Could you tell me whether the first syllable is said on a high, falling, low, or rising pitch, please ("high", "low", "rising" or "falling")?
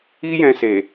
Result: high